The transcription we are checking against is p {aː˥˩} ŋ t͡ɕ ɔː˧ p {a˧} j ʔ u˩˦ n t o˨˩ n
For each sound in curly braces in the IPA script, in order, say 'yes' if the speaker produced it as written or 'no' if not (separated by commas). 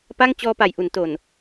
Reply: no, no